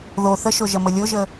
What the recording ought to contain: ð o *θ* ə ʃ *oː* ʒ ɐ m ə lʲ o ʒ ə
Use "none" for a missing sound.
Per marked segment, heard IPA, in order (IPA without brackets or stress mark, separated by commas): θ, o